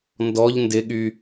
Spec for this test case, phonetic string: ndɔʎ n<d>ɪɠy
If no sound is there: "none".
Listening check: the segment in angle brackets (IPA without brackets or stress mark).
d